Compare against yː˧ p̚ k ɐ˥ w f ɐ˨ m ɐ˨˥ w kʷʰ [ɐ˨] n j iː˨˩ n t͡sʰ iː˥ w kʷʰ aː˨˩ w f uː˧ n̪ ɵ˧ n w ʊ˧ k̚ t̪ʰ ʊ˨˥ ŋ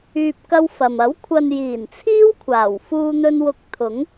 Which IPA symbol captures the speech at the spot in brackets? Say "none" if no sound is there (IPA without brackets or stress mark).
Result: ɐ˨